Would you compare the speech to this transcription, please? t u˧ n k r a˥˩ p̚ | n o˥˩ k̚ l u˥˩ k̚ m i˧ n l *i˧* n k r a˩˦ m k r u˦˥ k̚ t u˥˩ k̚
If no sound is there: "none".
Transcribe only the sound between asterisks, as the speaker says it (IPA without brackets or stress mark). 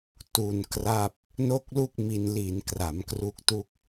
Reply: i˩˦